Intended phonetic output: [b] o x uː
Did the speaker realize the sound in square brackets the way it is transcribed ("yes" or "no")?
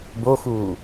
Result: yes